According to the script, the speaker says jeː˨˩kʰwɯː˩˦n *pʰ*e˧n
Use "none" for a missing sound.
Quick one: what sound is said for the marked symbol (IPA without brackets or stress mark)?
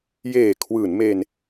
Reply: m